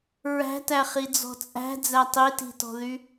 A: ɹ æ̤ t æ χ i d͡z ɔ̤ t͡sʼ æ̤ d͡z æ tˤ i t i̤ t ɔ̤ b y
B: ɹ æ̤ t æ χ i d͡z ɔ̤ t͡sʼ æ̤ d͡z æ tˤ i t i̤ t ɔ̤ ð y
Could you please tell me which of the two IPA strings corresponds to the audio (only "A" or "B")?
B